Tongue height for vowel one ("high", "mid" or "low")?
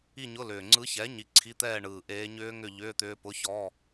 high